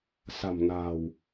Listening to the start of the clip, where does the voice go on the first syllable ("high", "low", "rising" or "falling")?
low